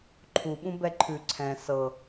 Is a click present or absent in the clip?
present